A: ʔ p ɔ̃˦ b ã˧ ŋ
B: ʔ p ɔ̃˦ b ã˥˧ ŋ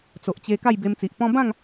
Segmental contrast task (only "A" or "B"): B